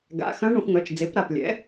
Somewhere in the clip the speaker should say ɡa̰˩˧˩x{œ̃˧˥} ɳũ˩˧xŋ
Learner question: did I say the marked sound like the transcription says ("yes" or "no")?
yes